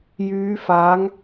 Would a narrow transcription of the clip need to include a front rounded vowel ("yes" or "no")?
yes